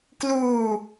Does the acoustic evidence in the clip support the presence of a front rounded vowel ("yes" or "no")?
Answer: no